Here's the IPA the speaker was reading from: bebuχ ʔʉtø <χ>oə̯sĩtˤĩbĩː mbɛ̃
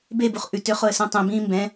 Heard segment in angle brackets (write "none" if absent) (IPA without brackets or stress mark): χ